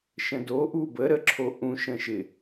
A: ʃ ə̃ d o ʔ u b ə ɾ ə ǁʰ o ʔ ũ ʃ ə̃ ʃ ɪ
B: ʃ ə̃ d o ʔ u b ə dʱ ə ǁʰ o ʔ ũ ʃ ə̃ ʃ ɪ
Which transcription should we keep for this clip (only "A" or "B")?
A